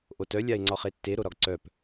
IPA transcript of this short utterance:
ʔ o t œ lʲ a e̯ ŋ͡ǀ ɒ χ e tː e ɾ o ɾ ɒ ɡ ǀ œ p

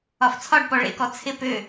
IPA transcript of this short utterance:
ɒ f t͡sʰ ɒ ɖ p ɔ ɭ ḛ k ɔ t͡sʰ ɪ p ø

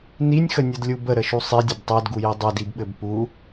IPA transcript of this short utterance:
n i nʲ x ə nʲ ɘ d lʲ u b ə ɾ ə ʃ u sˤ i dʲ ɘ b tˤ ɜ d ɡ u j i dˤ ɘ d i b ɓ ɘ b p u

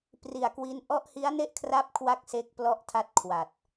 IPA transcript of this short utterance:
p r i˨˩ a̯ k w i˦˥ n ʔ ɔ˦˥ ʔ h i˦˥ a̯ n e˥˩ ʔ kʰ r a˦˥ p̚ kʰ w a˥˩ k̚ s e˦˥ k̚ p l ɔ˦˥ ʔ tʰ a˦˥ t̚ kʰ w a˨˩ t̚

